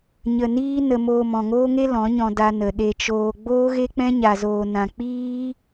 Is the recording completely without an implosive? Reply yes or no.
no